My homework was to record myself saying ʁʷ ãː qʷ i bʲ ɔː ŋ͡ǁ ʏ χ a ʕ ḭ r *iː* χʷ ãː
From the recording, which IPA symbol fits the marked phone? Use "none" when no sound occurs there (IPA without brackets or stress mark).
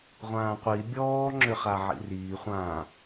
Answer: iː